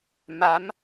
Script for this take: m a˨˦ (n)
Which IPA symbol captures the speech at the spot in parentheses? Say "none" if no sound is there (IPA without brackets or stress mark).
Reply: m